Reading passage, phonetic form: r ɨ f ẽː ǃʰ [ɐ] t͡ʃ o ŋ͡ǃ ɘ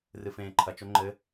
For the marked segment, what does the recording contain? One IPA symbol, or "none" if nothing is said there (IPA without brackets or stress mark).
ɐ